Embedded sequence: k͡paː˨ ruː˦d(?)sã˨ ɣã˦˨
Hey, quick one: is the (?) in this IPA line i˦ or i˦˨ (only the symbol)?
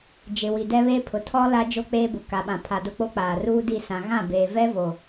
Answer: i˦˨